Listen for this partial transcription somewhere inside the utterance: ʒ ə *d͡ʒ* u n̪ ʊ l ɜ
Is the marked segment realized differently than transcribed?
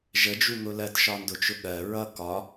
no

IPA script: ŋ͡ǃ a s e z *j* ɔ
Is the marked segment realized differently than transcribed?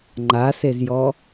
no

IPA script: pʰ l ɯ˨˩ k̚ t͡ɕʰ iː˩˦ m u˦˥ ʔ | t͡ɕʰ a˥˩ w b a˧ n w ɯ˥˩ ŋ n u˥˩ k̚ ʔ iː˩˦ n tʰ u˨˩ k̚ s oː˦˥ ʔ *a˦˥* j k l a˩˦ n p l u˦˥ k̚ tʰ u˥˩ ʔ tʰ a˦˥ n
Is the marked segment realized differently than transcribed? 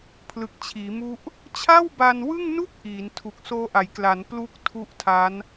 yes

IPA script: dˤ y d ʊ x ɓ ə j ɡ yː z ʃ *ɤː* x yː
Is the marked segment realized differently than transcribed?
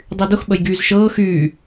no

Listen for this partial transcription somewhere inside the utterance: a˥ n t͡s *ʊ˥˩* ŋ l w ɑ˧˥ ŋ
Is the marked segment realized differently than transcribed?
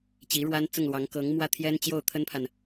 no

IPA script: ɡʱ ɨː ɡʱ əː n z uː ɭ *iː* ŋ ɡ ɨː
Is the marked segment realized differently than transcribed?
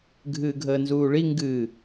yes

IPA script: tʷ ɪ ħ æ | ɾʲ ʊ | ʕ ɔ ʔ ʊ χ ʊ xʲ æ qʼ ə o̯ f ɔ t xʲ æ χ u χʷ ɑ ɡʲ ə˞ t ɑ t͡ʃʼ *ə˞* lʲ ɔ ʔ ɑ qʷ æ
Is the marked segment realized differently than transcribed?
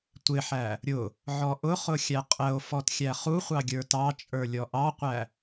no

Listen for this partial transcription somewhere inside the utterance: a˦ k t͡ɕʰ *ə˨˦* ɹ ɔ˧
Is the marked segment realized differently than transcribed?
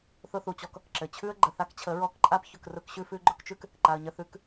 no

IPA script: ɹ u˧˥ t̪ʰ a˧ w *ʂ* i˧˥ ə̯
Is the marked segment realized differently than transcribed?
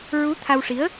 no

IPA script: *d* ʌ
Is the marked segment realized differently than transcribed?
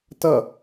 yes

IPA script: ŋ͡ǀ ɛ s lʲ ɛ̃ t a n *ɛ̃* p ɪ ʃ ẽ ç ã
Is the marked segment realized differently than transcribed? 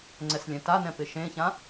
no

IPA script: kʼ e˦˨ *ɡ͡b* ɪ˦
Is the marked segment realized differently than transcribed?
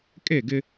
yes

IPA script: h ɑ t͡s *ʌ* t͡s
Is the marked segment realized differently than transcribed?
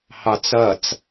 no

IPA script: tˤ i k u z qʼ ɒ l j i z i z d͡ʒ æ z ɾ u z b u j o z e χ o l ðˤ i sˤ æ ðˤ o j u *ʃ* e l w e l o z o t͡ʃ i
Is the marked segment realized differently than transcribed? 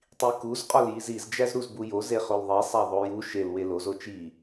no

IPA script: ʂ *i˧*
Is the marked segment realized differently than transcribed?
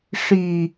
yes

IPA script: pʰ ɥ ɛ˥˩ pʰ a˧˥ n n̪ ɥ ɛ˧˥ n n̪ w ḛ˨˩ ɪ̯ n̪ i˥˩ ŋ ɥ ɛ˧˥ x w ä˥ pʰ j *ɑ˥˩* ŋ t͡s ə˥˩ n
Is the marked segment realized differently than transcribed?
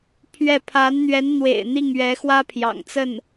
yes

